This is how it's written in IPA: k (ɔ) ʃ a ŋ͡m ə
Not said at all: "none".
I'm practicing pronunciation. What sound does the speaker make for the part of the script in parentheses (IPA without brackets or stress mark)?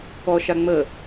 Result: ɔ